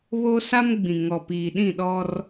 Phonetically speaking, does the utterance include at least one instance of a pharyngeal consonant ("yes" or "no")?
no